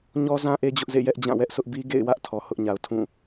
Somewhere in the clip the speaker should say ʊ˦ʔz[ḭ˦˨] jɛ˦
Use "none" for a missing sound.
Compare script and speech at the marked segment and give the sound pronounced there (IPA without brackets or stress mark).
ḛ˦˨